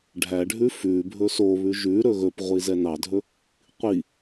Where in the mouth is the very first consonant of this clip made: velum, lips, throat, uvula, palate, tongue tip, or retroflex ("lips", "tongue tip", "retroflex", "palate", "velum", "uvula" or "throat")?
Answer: retroflex